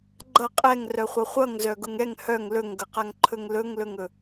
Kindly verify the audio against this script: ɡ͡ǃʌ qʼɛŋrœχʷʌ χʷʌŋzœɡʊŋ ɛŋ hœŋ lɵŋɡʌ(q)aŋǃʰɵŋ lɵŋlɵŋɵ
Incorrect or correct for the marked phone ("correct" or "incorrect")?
correct